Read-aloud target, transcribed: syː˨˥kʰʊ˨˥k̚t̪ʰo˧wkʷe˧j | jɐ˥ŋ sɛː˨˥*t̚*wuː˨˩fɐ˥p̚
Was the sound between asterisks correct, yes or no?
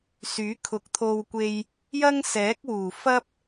no